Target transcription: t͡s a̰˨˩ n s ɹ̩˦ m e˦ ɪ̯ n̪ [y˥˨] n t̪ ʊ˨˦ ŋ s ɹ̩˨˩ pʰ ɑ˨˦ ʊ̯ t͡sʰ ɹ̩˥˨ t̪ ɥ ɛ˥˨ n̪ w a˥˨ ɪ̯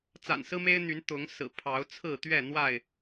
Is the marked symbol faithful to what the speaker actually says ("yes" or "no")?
no